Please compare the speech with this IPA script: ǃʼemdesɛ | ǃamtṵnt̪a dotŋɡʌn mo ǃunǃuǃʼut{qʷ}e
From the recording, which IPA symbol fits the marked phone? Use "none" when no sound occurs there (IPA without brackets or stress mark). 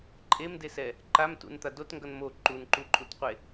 qʷ